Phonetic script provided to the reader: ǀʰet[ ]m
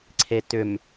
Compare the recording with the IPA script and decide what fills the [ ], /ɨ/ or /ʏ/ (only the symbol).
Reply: ʏ